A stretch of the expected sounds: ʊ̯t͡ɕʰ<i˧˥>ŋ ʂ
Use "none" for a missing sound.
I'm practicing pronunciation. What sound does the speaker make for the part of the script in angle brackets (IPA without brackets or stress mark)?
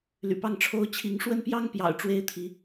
i˧˥